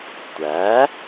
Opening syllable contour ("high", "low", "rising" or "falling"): rising